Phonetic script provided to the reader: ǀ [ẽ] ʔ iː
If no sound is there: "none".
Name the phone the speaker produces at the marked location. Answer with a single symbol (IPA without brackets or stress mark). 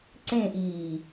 ẽ